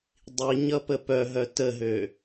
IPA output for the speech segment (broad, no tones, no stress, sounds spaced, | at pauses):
dˤ i ɲ ʌ p ə p œ ɦ œ t ə ɦ ø